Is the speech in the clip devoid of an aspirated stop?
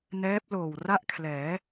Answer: no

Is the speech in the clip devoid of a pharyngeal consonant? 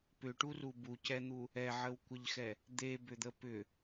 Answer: no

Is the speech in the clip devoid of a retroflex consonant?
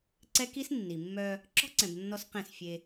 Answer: yes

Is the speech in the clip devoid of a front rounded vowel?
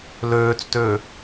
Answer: no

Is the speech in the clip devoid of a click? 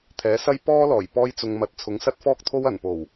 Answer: yes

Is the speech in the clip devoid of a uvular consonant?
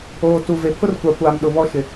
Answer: yes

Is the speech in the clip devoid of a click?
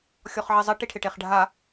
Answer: yes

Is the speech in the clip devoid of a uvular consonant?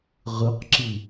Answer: no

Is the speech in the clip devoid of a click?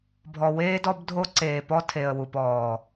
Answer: no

